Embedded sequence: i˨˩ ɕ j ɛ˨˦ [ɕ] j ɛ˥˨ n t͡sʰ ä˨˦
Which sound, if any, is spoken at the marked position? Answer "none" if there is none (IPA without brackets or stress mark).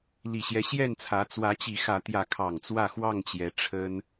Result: ɕ